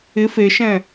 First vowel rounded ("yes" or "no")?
no